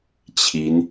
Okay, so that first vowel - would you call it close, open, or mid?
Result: close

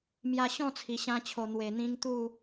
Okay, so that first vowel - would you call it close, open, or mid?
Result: open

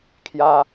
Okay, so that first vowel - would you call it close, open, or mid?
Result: open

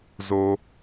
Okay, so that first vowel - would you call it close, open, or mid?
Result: mid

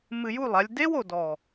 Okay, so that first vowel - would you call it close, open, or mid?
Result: close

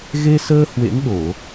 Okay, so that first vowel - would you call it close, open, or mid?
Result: mid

